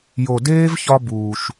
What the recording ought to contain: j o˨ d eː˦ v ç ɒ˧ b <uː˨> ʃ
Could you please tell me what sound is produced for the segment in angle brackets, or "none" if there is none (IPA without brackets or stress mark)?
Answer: uː˨